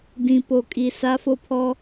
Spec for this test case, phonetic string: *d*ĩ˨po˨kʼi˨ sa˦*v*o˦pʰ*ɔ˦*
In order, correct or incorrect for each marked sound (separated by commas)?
correct, incorrect, correct